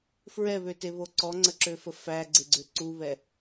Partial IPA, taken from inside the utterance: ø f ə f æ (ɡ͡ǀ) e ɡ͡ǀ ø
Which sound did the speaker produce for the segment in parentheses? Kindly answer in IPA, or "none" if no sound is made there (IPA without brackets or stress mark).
ɡ͡ǀ